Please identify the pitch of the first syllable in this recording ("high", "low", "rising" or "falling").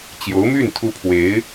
rising